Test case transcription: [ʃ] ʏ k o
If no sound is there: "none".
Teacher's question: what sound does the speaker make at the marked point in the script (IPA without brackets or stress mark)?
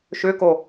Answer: ʃ